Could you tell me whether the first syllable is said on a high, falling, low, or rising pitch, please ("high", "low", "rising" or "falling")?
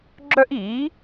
high